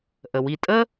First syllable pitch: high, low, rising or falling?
low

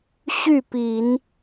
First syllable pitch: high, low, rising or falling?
falling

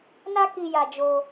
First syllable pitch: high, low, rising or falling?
high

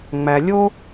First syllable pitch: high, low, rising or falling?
low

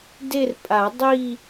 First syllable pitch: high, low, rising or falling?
falling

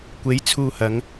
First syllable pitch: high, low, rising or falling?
rising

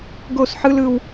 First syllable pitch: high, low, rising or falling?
falling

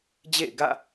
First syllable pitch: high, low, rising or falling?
falling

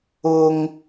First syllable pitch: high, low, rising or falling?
high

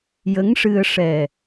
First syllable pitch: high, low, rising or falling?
rising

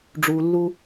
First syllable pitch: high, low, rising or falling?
low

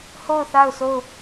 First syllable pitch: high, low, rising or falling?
falling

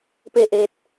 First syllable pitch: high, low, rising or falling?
falling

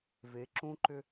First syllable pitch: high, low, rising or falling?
rising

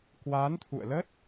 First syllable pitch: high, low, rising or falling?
rising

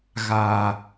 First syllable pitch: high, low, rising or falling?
low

